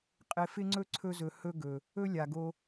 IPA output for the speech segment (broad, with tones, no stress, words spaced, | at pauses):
qʼɪ˧ fɪ˦ŋ͡ǀɵ˦ ǀʰɵ˧zɵ˨ hɵ˦ɡɵ˨ | ɵ˦lʲa˨ɡo˧